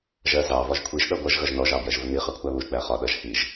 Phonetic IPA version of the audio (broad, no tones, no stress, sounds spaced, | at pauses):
ʒ ɜ z ɑ v ɒ ʒ kʷʰ i ʒ ɗ ʌ ɡʷ ʌ ʒ ɣ ʌ ʒ n ɔ ʒ ɑ b j ɜ ʒ v ʊ n i χ ɑ kʷʰ æ β u ʒ ɡ͡b æ χ ɒ ɗ ʌ ʒ h i ʒ